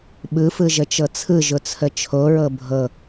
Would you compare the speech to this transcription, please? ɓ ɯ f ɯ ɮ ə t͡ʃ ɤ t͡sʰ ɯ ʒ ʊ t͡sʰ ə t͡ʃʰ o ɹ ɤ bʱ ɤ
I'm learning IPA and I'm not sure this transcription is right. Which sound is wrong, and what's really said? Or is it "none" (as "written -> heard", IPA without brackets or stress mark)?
ɮ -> ʒ